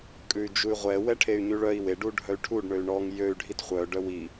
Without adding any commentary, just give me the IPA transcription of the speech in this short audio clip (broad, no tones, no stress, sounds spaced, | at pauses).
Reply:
kʼ ʉ y̯ d͡ʒ u y̯ ʁʷ ɛ w ɛ ʈʰ e y̯ ɲ ʉ ɭ œ i̯ w e ɖ u ɖʱ œ y̯ ʈʰ u ɖ ɳ ø y̯ ɳ ɔ ŋ j ø y̯ ɖʱ i t χʷ œ ɖ œ w i